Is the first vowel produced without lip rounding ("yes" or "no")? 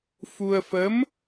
no